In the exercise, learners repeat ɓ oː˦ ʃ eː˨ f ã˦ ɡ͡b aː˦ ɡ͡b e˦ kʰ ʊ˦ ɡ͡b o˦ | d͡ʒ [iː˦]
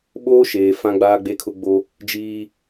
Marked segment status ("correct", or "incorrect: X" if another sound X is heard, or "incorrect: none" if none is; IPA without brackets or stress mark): correct